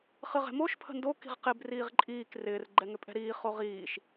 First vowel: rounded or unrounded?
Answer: unrounded